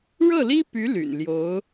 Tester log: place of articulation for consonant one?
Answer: retroflex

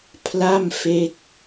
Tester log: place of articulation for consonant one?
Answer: labial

